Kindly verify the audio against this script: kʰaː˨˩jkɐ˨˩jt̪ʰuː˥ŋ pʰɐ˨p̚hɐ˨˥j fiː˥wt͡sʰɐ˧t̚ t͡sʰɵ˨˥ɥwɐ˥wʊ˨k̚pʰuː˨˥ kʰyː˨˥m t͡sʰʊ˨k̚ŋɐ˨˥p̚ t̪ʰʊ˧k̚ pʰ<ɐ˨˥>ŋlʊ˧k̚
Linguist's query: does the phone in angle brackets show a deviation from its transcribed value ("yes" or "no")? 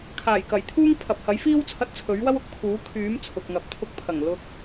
yes